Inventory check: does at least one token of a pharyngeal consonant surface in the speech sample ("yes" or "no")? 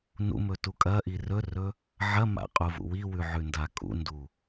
yes